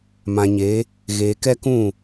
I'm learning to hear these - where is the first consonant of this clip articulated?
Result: lips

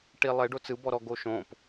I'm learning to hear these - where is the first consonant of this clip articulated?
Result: retroflex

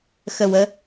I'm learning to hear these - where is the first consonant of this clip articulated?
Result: velum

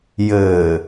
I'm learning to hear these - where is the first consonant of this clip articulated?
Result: palate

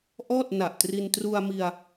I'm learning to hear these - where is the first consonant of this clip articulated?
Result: throat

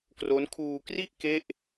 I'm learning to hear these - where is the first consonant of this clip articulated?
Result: velum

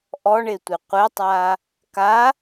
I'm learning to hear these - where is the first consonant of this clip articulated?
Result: throat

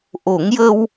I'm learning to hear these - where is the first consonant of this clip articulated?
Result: throat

